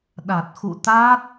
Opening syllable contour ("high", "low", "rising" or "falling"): low